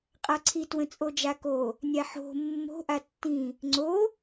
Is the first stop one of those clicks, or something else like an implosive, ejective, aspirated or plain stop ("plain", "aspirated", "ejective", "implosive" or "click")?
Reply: ejective